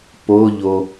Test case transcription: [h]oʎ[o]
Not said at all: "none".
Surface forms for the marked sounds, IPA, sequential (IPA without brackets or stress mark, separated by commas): p, o